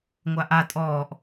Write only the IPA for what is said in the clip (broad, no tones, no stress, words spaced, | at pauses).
ŋʷaʔa tʼɔːʔ